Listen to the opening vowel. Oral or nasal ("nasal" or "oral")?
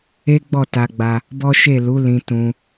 oral